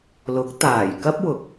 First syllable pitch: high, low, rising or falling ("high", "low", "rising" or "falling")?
rising